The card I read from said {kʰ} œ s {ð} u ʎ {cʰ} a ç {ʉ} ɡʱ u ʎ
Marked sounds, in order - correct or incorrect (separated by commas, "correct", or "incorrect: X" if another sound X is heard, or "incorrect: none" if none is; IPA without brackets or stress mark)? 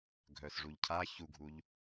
incorrect: ɡʱ, incorrect: ʐ, correct, incorrect: u